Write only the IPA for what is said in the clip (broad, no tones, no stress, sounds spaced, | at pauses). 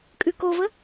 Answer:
kʼ ʉ k o v ə